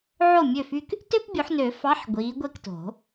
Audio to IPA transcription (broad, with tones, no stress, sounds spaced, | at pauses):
ʕ o˥˩ mʲ ø˥˩ f y˥ k | t ø˥ p bʲ o˨˦ ħ n ø˨˩˦ f ɑ˧˥˧ ħ ɡʷ iː˨˦ ɡʷ e˥˩ k t o̤˨˩˦